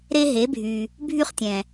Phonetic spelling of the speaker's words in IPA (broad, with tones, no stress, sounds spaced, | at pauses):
ɾ e˧ ɦ e˩˧ bʱ y˩ | bʱ y˧ χ tʲ ɛ̃˩